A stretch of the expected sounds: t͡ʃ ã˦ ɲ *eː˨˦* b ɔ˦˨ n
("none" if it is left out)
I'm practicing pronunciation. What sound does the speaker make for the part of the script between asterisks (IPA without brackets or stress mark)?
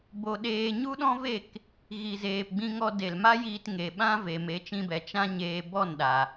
eː˧